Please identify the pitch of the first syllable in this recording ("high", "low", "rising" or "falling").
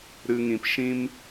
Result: low